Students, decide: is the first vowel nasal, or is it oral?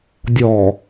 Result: oral